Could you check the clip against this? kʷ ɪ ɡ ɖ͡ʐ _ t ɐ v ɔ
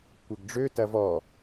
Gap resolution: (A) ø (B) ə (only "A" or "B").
A